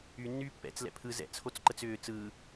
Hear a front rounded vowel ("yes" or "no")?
yes